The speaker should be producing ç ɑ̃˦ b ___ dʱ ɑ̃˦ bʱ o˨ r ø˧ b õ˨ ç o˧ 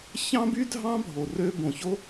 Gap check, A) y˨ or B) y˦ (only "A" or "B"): B